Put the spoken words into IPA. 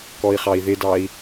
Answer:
k ɔ i̯ χ ɑ i̯ ð ɪ d ɑ i̯

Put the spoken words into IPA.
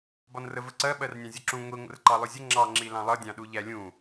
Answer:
b ɒ n r ə v ə ǀ ɜ ɓ ɜ r nʲ ɑ̃ zʲ ɒ ǁ ũ ŋʷ i ŋʷ ə̰ r ǃ ɑ lˠ ʊ zʲ ə ŋ͡ǁ ɑ ŋ͡ǁ i l ɑ̃ lˠ ʌ dʲ ɑ̃ ɗ u ʎ æ lʲ ũ

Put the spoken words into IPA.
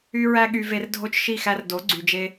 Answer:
y˦ ɹ æ˦ ɠ y˧ v e˧ r dʱ o˦ t͡ʃ ʃ i˦˨ x æ˧ r d o˨˦ ɡ͡ǀ y˨ d͡ʒ e˧

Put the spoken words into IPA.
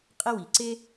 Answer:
qʼ ɛ˥ w i˩ ǀ e˥

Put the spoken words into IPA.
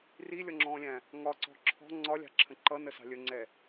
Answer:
r i lʲ ɔ ŋ͡ǁ ɔ̃ː lʲ æ̃ | ŋ ɒ ǀ ɔ̤ ǁʰ ɔ̤ ŋ͡ǀ ɒ lʲ ɑ̤ ǁʰ ə̃ ǃ ʌ n ə s ɑ̤ lʲ ə ŋ͡ǀ ɛ

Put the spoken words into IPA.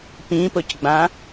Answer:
p ĩ p ʊ c ɡ͡b ã

